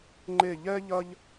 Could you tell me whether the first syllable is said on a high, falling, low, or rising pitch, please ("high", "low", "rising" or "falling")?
falling